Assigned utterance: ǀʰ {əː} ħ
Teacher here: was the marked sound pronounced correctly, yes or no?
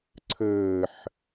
yes